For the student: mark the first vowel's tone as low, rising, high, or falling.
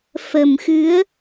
low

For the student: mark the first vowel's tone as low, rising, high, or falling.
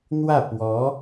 falling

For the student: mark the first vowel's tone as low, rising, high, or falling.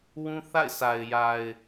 high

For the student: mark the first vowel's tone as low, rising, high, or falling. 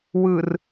low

